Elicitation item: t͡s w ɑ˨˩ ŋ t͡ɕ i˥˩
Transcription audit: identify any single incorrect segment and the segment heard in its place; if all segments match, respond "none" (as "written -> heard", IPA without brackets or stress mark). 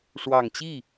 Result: t͡s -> ʂ